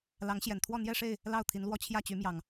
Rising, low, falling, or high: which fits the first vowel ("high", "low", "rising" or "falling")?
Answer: rising